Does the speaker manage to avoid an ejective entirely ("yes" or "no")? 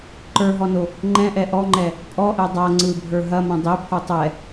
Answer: no